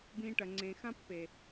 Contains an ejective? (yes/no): no